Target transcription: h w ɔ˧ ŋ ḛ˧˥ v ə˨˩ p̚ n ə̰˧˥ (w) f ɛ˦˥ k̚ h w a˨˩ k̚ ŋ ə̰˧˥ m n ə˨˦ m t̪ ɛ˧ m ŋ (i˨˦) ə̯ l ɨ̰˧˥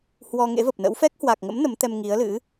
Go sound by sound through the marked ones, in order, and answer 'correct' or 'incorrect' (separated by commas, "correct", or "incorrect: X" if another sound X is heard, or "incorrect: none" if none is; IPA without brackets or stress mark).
correct, correct